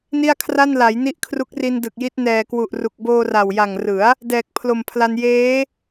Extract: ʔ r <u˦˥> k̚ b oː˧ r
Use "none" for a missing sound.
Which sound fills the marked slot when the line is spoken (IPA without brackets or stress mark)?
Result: u˨˩